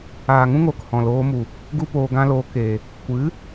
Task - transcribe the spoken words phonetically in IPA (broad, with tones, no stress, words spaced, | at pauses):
aː˨ŋũ˦ŋoː˨k hɔ̃˨loː˧mu˨ | ɡu˦poː˧ɡã˦loː˧ ke˨ | kʷɨ˨˦